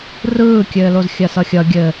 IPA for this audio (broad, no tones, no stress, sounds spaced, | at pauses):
r ɯː kʲ ɘː l o z xʲ ɐ s ʌ xʲ ʌ ɡʲ ɘ